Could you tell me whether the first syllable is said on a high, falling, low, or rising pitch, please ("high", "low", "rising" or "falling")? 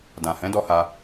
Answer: low